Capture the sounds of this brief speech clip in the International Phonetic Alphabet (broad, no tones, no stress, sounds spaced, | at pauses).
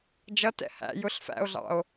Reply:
d͡ʒ ʌ t ɛ̰ h æ̰ j ʊ ɬ f æ̰ o̯ ɮ ɑ̰ o̯